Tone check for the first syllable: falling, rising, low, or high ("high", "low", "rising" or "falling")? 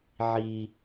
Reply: high